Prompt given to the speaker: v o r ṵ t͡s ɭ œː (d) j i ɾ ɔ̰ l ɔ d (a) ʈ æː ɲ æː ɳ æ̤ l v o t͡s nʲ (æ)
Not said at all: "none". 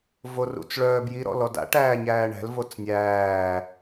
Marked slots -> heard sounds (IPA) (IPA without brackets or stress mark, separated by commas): b, a̰, æː